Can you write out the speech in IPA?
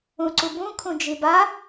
ũ ǀ u b ũ kʰ ũ d͡ʒ i b a

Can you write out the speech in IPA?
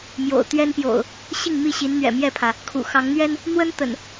m j o̰˨˩ ʊ̯ t̪ ɥ ɛ˦ n p j o̰˨˩ ʊ̯ | ɕ i˥˨ ŋ m i˥˨ ɕ i˨˦ n n̪ ɥ ɛ̰˨˩ m j ɛ˥˨ pʰ ä˩ | kʰ ṵ˨˩ x ɑ˨˦ ŋ n̪ ɥ ɛ˦ n | n̪ w ə˦ n t̪ ə̰˨˩ n

